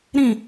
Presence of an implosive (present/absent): absent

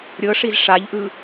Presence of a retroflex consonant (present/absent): present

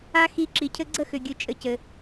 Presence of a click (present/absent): present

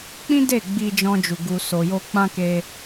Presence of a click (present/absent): absent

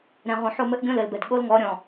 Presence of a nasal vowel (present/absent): present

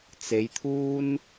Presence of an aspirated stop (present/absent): present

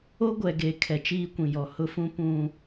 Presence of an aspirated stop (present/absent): present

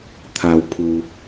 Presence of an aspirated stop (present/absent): present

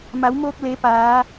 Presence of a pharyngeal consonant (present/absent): absent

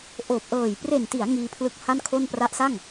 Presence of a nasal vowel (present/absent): absent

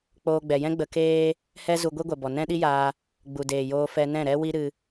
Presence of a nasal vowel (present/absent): present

